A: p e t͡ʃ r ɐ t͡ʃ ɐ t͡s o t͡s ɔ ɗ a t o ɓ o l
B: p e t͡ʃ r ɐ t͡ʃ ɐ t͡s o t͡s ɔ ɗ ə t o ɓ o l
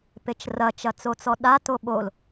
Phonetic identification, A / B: A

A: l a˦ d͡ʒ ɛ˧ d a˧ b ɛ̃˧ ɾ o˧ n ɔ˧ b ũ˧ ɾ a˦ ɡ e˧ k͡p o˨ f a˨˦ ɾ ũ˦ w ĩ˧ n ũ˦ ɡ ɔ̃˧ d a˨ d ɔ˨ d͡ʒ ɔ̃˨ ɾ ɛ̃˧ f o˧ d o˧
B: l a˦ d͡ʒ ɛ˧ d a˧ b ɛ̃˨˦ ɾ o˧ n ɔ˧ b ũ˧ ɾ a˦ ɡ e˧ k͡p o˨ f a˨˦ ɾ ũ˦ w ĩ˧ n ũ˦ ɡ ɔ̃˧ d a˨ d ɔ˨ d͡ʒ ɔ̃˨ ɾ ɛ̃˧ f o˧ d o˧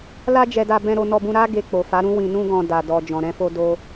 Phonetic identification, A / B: A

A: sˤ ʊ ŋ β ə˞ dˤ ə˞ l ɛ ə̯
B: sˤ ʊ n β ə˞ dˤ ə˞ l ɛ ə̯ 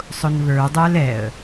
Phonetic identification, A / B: B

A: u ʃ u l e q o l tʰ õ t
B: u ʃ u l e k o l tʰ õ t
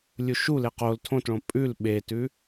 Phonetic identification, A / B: A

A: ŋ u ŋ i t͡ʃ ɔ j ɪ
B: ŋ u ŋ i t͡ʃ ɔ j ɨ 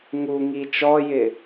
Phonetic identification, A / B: A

